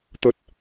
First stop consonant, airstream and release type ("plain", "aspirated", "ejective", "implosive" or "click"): plain